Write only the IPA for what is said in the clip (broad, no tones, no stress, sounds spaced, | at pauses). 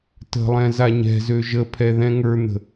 t ə̤ lˠ ɛ̃ z a ɲ ɛ̤ z ø ʒ ə pʰ ɛ ð ɛ̃ ŋ ə˞ n̪ ə̤